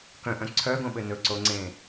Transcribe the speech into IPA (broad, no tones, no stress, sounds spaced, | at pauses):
k œ̃ ʔ œ̃ ǀʰ œ ɡ õ ɓ ɘ n ɵ ǀ o ŋ͡ǀ ẽ